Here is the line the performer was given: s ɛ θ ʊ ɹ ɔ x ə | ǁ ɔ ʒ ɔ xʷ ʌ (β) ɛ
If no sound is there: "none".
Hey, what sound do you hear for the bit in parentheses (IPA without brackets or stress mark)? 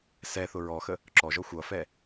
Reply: f